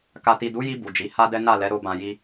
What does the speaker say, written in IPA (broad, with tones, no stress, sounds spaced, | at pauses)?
k a˨ t i˨ d u˨˦ j i˧ b u˨ d͡ʒ i˨˦ h a˦ d ɛ˦ n a˦˨ l ɛ˨˦ ɾ o˧ b ã˨ j i˧